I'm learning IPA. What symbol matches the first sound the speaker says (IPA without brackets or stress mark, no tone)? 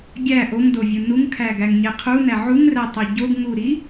ɡʲ